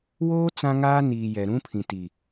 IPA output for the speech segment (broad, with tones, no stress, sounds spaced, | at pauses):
w oː˦ t͡s ã˦ ŋ aː˦ n iː˨ j ɛ˨ ɾ ũ˦ pʰ ĩ˨ t i˨